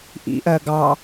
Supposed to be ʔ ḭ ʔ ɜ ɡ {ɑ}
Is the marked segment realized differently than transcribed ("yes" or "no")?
no